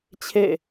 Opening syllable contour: falling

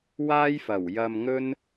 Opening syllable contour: high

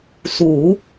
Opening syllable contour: low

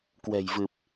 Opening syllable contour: low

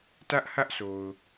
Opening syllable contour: high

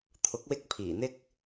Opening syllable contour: rising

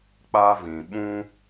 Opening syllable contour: high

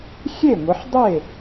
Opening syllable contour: falling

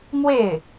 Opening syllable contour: falling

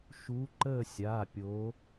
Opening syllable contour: rising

